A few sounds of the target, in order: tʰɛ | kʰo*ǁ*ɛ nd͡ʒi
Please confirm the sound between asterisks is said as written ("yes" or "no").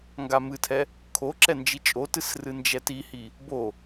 yes